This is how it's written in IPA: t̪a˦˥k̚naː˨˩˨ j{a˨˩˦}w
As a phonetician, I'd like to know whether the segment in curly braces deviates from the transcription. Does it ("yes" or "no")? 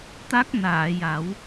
no